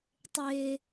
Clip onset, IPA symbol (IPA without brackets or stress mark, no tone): tˤ